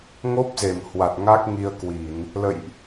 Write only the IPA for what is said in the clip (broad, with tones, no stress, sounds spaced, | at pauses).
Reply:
ŋ o˦˥ p̚ z e˧˩ m h w a˨˩ t̚ ŋ a˦˥ k̚ ŋ i˧ ə̯ k w i˧˩˨ n | l ə̰˧˨ j ʔ